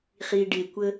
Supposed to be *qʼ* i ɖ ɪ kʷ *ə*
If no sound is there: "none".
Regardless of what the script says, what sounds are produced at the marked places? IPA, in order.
χ, ə

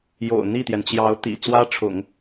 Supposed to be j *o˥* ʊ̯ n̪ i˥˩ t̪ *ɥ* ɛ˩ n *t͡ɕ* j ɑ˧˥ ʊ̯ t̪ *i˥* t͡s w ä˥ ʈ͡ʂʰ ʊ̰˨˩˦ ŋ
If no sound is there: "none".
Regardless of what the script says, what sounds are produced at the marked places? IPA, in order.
o̰˨˩, j, t͡ɕ, ḭ˨˩

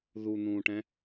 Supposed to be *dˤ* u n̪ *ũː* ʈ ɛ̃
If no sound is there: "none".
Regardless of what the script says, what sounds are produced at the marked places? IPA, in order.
ð, ũː

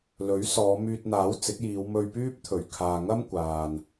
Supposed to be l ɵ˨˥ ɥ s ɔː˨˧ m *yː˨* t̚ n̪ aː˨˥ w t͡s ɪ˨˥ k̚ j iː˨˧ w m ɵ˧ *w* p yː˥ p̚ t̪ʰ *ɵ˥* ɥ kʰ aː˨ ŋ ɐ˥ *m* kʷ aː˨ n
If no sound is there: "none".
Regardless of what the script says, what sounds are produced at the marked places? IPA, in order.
yː˧, ɥ, ɵ˨˩, m

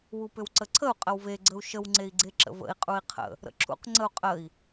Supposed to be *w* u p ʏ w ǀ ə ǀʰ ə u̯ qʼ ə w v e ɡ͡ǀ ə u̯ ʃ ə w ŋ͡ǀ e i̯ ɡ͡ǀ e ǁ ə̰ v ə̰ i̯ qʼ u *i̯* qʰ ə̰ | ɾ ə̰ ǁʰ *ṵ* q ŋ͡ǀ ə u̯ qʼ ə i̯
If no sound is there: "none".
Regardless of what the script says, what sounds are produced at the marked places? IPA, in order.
w, i̯, ṵ

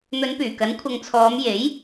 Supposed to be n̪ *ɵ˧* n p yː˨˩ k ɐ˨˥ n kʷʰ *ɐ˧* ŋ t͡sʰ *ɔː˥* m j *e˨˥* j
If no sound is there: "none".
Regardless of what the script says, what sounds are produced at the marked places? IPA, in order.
ɵ˨˧, ɐ˧, ɔː˨˧, e˨˥

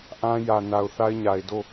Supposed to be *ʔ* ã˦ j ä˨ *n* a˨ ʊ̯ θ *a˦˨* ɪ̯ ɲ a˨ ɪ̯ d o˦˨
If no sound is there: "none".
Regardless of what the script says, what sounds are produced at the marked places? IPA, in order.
ʔ, n, a˦

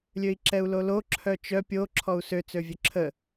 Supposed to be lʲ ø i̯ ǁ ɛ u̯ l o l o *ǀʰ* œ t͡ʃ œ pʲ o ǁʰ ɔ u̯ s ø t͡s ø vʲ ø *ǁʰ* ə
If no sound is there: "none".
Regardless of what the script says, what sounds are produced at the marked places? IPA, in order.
ǁʰ, ǁʰ

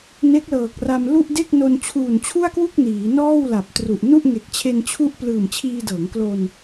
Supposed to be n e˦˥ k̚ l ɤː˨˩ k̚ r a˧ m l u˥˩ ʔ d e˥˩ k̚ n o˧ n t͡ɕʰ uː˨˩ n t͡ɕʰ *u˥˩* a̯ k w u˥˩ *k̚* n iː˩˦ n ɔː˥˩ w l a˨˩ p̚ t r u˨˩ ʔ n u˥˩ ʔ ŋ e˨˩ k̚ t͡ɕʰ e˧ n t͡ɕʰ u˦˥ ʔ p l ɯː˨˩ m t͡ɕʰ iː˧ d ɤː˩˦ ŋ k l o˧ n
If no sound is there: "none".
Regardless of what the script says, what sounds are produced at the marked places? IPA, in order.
u˥˩, k̚

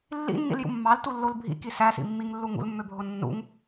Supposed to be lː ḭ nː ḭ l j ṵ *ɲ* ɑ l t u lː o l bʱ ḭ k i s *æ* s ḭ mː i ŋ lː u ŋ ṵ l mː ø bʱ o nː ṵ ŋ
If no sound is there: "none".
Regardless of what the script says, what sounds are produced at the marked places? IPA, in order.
mː, æ

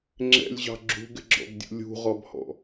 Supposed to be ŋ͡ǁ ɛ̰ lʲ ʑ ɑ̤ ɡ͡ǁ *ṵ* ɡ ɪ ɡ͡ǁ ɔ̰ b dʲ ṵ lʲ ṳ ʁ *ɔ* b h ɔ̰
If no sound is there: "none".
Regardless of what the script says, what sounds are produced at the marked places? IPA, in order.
ṳ, ɔ

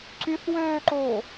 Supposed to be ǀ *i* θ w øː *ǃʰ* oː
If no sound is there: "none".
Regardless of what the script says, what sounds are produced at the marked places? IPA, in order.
y, ǃ

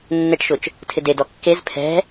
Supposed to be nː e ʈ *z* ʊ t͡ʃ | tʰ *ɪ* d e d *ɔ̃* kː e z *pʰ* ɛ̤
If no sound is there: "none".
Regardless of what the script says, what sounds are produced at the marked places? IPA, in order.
ʃ, ɪ, ɔ, pʰ

